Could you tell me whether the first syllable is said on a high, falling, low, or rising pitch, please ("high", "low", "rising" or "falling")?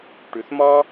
low